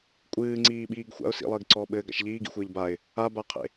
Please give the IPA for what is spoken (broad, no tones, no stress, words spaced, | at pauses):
kʷʼɨːŋ͡ǀiːɓiːɡ xʷa̰ʊ̯ sḭlˠɘːɡǀɔː ɓɘːɡa̰ʃ ʎiːɡḭxʷɘːʎ baɪ̯ | abaqʰḛ